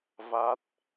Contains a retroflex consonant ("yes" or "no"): no